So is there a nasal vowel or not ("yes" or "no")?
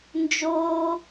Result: no